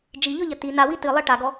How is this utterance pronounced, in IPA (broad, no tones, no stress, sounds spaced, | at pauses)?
d͡ʒ i ʎ ɔ ʎ ɐ t i n a w i t ɨ lˠ ɛ ʈ a ɡ ɔ